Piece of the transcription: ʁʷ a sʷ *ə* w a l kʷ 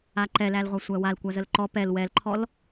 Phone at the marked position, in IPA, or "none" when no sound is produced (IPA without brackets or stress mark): æ